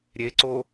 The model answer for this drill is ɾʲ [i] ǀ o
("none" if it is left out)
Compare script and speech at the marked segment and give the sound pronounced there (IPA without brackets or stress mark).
e